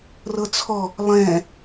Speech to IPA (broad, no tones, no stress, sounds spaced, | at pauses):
r ɤ t͡sʰ ɔ | lˠ ɛ̃